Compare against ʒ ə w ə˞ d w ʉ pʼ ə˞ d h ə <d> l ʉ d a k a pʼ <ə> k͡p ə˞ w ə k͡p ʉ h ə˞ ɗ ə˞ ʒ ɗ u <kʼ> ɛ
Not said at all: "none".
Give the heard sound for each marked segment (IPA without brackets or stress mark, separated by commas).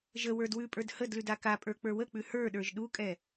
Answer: d, ə˞, kʼ